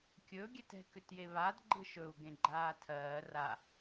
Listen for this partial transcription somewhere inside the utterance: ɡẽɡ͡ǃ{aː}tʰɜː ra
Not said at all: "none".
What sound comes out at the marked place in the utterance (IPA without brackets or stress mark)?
aː